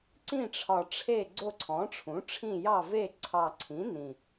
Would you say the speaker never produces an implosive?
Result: yes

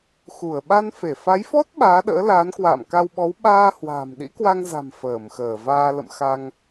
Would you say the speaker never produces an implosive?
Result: no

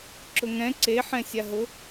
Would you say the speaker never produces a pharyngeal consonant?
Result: no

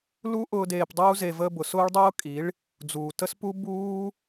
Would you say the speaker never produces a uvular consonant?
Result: yes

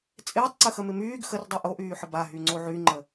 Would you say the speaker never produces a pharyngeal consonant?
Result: no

